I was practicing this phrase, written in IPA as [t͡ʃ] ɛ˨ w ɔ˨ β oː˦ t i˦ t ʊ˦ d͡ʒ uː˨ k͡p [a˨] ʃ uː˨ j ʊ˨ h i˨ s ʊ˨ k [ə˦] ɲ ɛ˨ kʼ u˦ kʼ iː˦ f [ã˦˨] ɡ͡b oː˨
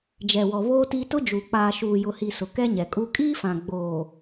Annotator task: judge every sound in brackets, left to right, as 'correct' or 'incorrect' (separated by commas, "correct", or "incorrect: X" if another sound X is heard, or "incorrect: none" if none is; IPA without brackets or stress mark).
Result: incorrect: d͡ʒ, incorrect: aː˨, incorrect: ɛ˦, incorrect: ã˨